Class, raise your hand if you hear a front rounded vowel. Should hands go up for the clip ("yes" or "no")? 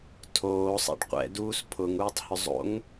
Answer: yes